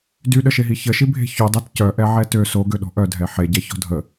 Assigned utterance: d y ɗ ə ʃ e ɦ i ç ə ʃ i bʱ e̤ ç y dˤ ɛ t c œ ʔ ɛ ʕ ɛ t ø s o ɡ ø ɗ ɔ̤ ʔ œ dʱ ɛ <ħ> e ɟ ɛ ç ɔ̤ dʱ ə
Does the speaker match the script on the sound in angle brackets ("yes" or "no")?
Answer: yes